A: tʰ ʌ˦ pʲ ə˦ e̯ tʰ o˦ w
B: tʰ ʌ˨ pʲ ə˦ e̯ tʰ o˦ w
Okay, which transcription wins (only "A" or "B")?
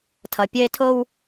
B